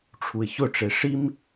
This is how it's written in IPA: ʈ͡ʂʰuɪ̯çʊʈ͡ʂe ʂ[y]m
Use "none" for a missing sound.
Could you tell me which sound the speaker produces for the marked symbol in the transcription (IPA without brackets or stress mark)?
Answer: i